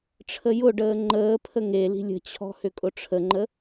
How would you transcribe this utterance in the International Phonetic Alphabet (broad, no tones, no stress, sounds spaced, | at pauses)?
ʈ͡ʂʰ ə j ʊ ɖ əː ŋ͡ǃ əː pʰ ə ŋ e l i̤ lʲ ə̤ t͡ɕʰ ɔ̤ h ʏ kʼ ʊ ʈ͡ʂʰ ə ŋ͡ǃ ə